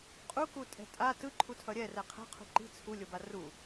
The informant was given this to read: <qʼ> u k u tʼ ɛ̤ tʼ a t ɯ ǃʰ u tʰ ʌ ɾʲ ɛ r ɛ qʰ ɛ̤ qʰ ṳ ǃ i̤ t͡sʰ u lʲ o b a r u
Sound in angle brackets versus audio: correct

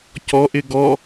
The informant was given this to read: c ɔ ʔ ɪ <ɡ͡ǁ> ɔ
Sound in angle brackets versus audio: incorrect: ɡ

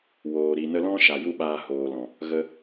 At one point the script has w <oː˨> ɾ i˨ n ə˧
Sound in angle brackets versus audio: correct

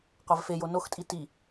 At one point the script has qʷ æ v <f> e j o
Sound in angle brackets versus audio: correct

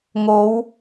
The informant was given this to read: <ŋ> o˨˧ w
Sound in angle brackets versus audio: correct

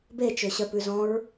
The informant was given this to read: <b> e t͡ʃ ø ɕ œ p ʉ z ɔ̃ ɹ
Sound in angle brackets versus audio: correct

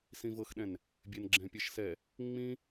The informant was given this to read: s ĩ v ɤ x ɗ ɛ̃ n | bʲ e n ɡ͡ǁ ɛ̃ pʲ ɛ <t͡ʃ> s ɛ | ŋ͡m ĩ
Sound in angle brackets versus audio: incorrect: ʃ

